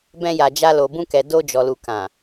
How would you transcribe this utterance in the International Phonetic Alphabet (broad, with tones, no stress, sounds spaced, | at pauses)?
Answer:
b ɛ̃˧ j a˨ d͡ʒ a˧ l o˨ b ũ˧ k ɛ˨ d o˧ d͡ʒ ɔ˨ l u˨ k ã˨